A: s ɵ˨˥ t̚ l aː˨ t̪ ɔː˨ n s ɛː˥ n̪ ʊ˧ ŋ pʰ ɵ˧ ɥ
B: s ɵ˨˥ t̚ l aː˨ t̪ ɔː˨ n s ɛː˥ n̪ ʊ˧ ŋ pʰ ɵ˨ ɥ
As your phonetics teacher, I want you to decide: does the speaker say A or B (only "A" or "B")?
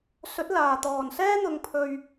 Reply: A